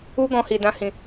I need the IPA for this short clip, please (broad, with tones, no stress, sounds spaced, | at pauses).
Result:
u˦ ɡ ɔ̃˧ h i˨ d ã˧ h ĩ˨